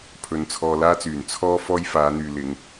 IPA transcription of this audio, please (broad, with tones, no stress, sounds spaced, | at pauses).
pʰ ɵ˧ n t͡sʰ ɔː˧ l aː˥ t͡s yː˨˩ n t͡sʰ ɔː˥ f ɔː˥ j f aː˨˧ n̪ yː˨ l ɪ˨˧ ŋ